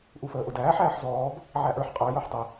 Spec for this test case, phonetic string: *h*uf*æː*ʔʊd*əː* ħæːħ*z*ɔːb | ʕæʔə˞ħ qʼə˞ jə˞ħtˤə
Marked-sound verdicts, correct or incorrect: incorrect: ʔ, incorrect: əː, incorrect: æː, correct

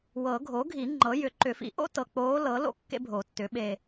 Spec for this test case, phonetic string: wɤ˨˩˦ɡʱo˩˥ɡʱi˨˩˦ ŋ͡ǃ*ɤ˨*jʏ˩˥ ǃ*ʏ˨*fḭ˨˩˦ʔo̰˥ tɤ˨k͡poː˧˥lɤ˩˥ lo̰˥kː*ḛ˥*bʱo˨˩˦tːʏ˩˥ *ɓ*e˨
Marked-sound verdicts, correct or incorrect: incorrect: ɤ˩˥, incorrect: ʏ˨˩˦, correct, correct

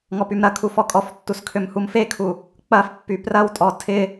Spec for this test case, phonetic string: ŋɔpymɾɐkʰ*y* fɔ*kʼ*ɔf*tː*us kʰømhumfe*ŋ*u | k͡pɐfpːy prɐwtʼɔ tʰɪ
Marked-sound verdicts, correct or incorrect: incorrect: u, correct, correct, incorrect: kʰ

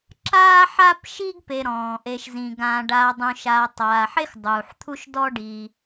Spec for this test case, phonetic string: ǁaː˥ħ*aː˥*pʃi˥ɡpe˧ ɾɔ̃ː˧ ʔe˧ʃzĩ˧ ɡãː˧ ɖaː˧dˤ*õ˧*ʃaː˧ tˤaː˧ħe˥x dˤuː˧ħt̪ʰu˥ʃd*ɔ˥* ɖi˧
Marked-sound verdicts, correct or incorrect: incorrect: a˥, incorrect: ũ˧, correct

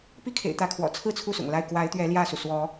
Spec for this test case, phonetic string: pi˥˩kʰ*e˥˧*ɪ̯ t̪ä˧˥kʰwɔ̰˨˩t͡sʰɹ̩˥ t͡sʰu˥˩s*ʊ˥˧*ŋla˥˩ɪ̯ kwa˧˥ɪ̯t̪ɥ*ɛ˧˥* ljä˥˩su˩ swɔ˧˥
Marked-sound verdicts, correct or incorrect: incorrect: ḛ˨˩, incorrect: ʊ̰˨˩, correct

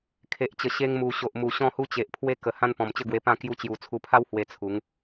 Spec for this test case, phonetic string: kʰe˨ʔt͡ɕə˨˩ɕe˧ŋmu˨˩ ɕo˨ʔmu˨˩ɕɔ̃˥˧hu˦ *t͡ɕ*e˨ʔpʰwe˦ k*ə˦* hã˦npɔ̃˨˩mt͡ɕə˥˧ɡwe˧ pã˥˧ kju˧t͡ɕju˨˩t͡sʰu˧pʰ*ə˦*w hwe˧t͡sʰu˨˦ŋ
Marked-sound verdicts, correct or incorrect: correct, incorrect: ə˨˩, incorrect: a˦

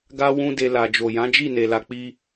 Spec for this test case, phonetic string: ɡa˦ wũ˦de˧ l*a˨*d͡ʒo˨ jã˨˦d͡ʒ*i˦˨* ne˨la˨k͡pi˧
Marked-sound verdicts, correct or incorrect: correct, correct

